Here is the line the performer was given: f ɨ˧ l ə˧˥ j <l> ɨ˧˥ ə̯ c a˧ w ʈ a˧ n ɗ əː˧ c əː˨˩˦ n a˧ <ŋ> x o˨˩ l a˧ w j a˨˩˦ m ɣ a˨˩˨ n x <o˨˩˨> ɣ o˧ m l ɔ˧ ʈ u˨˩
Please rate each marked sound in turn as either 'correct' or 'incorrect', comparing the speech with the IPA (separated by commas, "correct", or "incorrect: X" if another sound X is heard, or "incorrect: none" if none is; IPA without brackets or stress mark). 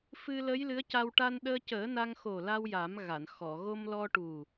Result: correct, correct, incorrect: ɔ˨˩˨